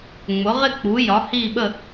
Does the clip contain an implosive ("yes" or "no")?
yes